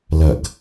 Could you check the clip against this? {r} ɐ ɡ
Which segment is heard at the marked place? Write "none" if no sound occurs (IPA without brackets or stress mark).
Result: l